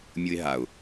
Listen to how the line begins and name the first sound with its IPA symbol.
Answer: mʲ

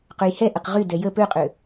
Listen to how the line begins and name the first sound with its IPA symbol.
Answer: q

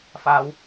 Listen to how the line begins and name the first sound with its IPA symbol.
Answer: f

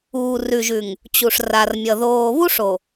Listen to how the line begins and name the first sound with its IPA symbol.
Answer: uː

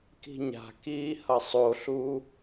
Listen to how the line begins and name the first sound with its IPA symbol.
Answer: k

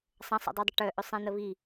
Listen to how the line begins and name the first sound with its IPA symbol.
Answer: sˤ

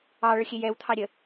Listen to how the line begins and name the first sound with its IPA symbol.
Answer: ɑ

